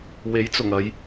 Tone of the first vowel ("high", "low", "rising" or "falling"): rising